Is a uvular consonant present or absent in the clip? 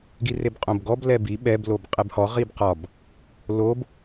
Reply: present